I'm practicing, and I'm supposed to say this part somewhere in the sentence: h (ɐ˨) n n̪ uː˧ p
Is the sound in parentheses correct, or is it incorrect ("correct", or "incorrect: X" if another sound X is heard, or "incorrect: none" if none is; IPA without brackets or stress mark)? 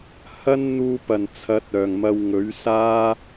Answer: incorrect: ɐ˥